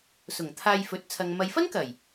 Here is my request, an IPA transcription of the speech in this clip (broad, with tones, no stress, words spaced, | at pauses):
sʊ˨˩ŋt̪ʰaː˧jfɵ˨˥t̚ t͡sʰɐ˨ŋ mɐ˨jfɐ˥nkɐ˨˩j